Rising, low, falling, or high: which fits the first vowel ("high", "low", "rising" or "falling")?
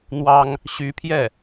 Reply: high